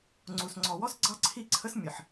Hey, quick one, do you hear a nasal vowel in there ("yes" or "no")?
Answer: no